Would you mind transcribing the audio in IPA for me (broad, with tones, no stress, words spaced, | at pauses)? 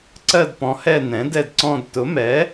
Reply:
ǀɜ˦˨dpɔ̃˩˥hɛ˦˨ nɛ̃˩˥dɛ˦˨dǀɔ̃˦˨d tʊ˩˥mɛ˩˥